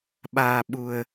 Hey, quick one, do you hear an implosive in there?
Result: yes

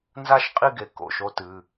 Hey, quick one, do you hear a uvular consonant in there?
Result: yes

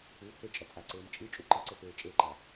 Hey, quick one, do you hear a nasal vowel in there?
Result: no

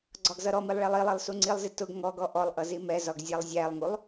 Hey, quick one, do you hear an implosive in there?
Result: no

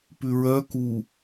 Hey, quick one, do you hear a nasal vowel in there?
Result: no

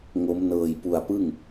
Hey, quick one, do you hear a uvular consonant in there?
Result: no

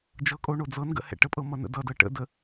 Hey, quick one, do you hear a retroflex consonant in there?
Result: yes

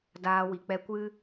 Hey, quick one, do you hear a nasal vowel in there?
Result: no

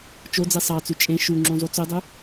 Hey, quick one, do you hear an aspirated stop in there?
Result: no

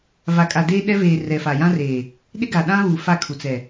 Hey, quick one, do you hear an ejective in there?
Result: yes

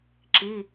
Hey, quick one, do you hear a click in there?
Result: yes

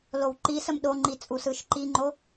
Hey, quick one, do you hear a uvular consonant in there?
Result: no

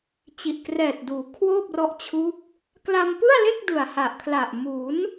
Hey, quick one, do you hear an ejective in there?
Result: no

